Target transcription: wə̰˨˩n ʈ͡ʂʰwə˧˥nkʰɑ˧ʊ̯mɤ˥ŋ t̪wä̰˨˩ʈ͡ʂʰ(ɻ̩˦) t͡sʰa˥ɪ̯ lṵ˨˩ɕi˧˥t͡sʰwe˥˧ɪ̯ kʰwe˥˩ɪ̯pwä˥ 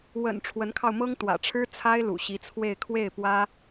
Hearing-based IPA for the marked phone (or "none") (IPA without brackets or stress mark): ɻ̩˥